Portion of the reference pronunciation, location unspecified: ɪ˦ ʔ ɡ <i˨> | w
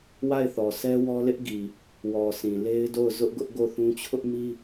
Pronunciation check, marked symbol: correct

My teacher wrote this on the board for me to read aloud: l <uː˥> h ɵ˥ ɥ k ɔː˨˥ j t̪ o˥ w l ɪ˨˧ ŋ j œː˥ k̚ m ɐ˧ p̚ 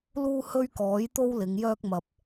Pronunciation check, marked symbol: correct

